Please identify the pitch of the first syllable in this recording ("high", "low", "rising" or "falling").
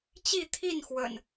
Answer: falling